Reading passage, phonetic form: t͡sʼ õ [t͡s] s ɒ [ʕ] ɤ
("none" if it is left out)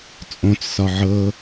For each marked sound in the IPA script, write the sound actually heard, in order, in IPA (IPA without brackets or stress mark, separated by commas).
t͡s, ʕ